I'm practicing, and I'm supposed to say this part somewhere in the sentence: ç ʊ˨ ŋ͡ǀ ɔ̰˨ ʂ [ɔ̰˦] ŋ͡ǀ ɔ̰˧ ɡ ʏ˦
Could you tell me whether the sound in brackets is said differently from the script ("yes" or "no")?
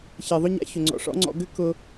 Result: no